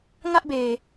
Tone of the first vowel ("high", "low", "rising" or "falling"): high